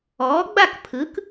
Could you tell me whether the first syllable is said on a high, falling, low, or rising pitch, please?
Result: rising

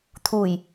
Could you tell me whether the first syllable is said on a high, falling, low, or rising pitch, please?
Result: low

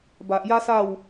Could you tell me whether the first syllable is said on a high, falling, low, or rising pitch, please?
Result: low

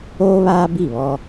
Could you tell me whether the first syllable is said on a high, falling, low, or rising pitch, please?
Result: high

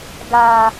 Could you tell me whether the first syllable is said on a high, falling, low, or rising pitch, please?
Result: low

